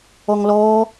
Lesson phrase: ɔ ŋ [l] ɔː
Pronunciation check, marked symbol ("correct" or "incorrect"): correct